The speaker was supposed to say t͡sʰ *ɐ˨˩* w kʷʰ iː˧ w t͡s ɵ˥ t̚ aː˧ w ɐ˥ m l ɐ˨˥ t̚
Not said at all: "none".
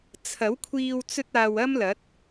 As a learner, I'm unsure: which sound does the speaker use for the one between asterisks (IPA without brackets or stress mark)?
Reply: ɐ˨˥